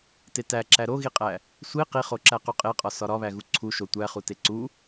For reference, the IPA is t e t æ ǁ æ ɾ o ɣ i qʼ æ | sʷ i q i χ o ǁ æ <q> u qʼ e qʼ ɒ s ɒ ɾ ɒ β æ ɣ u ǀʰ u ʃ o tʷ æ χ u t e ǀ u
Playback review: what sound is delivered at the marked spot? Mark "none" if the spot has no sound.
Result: q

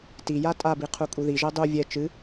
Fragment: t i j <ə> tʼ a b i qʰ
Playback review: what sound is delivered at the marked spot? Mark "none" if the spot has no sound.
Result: a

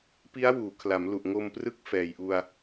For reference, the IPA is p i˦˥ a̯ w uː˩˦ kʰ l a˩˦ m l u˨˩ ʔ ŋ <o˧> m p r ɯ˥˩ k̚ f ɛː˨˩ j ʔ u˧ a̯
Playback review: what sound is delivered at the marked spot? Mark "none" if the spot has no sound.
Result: o˧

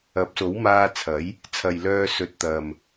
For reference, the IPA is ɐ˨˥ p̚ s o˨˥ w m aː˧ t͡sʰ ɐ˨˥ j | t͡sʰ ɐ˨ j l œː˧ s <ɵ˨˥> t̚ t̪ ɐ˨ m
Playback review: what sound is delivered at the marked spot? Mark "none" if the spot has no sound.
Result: ɵ˨˥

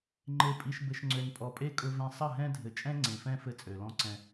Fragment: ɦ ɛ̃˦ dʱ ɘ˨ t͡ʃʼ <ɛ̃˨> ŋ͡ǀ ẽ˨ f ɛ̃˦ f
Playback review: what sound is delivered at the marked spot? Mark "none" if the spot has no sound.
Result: ɛ̃˦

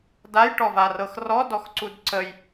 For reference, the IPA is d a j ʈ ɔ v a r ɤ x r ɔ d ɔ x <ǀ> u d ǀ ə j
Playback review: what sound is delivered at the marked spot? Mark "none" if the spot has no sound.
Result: ǀ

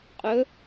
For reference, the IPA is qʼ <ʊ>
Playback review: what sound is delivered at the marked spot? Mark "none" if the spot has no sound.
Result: ɵ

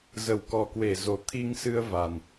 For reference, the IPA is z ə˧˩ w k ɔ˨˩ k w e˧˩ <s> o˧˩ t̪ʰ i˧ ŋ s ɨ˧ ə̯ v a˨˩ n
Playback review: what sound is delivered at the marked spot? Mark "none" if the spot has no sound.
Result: z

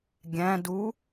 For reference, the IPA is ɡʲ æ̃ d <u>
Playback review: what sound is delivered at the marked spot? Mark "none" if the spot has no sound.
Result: u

